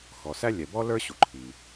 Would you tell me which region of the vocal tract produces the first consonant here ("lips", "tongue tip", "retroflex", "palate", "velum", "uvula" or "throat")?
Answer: velum